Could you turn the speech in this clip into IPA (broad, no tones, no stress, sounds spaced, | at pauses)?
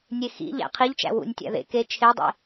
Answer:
nʲ e x ḭ ʎ æ̰ qʰ i ʎ t͡ʃ æ̰ w ṵ nʲ tʲ æ̰ ð ḛ k e t͡ʃʰ e dˤ ḭ